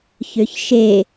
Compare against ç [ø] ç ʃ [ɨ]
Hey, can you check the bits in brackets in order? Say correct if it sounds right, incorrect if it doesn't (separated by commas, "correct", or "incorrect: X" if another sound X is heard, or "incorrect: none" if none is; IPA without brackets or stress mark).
correct, incorrect: e